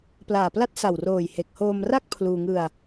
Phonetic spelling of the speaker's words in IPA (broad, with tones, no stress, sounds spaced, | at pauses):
p l aː˨˩ p l a˦˥ t̚ s a˨˩ w r oː˨˩ j h e˨˩ k̚ h oː˧ m r a˥˩ k̚ pʰ l uː˧ ŋ ɯ˧ a̯